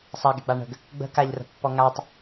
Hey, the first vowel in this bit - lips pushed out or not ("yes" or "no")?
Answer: no